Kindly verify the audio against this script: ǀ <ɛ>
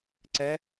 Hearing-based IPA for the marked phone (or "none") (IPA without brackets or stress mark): ɛ